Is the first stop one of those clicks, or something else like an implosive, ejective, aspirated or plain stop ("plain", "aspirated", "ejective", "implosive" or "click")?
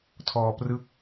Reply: aspirated